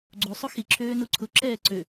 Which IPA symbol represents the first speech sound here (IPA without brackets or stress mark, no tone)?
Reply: ɡ͡ǀ